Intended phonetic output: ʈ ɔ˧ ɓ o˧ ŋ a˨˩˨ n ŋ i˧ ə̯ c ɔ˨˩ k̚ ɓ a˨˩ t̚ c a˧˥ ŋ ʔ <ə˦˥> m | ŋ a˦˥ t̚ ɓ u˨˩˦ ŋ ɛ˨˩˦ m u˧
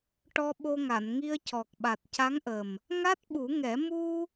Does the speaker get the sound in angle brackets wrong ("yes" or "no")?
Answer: yes